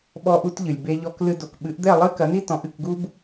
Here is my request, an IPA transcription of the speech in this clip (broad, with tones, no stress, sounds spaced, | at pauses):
ɓ ɔ˧ ʔ u˧ t ʎ ɨ˩ lʲ b e˧ ʎ ɔ˧ k l ɨ˧ d o˩ k ɓ ɨ˩˥ ʔ d̪ ɛ˥˩ lˠ ɨ˥ k ɐ˩˥ n i˥ t ɔ̃˩˥ ʔ ɨ˥˩ k ɡ u˥ b